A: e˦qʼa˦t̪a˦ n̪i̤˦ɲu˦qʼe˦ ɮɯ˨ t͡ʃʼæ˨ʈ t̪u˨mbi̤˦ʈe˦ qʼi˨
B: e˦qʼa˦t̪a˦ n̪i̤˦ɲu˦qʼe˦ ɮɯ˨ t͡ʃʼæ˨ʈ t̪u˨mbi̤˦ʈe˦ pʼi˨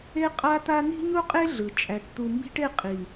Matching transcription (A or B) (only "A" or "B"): A